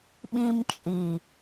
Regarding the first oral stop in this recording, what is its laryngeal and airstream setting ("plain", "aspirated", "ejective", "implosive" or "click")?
implosive